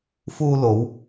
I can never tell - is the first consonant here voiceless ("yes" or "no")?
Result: yes